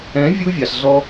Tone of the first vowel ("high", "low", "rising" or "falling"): rising